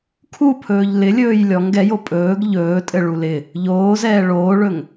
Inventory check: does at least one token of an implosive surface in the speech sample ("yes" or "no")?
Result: no